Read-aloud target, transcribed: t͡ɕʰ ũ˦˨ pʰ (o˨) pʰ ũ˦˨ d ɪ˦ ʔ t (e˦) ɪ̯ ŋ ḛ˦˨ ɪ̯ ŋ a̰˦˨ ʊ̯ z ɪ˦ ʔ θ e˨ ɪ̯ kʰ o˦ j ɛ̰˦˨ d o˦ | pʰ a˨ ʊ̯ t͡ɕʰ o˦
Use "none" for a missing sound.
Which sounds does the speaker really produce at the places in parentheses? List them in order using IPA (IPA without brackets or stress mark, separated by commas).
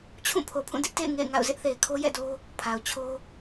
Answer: o˨, ḛ˦˨